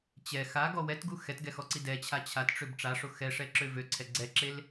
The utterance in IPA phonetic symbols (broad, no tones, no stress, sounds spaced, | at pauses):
t͡ɕ ɛ x a ɡ ɔ w ɛ t ɡ u x ɛ t ɡ ɛ x ɔ ǀ i d ɛ t͡ɕʰ a t͡ɕʰ a t ʈ͡ʂ ø b ʈ͡ʂ a ʂ o x ɛ ʂ ɛ ǁ ø v ø ǀʰ ɛ ɡ͡ǀ ɛ ǁ e l